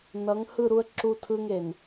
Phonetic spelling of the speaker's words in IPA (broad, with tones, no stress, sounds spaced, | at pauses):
n ʌ˨˦ ŋ h ɯ˦˨ ɾ u˦ ə̯ ǁ u˦ tʰ ɯ˦ ŋ e˨ n